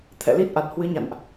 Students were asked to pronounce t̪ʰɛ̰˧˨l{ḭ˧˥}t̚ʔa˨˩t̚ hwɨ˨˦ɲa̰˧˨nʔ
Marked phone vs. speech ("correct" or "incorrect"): incorrect